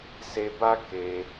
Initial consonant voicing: voiceless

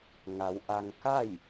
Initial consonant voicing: voiced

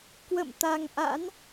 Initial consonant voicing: voiceless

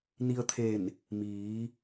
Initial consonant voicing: voiced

